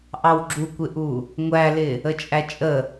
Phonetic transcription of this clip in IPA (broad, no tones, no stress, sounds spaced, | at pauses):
ʔ ɑ w ɡ͡ǁ u kʷ ɪ ʔ u | ŋʷ æ l ɪ | ə t͡ʃʼ æ t͡ʃʼ ə